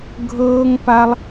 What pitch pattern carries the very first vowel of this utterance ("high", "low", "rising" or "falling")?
high